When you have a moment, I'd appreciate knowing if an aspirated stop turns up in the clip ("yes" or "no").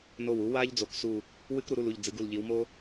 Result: no